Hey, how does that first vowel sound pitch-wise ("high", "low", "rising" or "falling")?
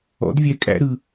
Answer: rising